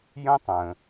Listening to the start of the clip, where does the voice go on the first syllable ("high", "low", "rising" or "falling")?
high